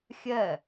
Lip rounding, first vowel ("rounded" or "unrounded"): unrounded